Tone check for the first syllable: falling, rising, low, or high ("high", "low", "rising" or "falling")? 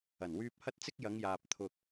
low